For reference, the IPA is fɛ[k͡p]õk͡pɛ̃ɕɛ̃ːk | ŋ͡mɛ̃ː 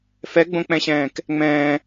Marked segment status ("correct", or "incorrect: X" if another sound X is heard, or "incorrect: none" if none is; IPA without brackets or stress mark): incorrect: ɡ͡b